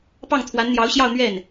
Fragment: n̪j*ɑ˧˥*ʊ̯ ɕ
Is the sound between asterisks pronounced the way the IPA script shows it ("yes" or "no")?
yes